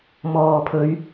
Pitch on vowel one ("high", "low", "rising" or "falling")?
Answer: low